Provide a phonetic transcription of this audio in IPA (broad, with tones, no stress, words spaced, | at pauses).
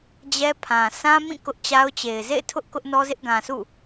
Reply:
d͡ʑɛ˦pʰã˨ sʰã˦mĩ˦˨ kʊ˦ʔt͡ɕa˦ʊ̯t͡ɕe˨ɪ̯ zḛ˦˨ɪ̯tʰʊ˦ʔ kʊ˦ʔnɔ˦zɪ˦ʔ ɡã˨sṵ˦˨